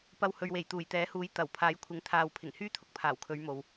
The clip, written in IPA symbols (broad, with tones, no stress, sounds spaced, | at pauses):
p ɐ˧ w h ɵ˨ ɥ w e˨˩ j t̪ uː˨˩ j t̪ ɛː˨˥ h uː˨˥ j t̪ ɐ˨˩ w pʰ aː˨˥ j kʷʰ ɪ˨˧ ŋ t̪ʰ aː˨ w pʰ ɪ˨˩ ŋ h yː˥ t̪ʰ ʊ˨ k̚ pʰ aː˨˩ w kʰ ɵ˨˧ ɥ m o˨ w